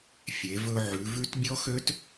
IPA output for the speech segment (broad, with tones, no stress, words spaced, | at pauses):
fʲe˩˧ vɵ˧ʕʉ˩˧vʉ˦˥t bʲɔ˦˥xø˦˥t